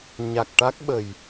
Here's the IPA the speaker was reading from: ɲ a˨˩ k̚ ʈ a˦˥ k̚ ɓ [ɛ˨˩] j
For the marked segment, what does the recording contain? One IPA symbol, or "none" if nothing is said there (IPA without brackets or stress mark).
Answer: ə˨˩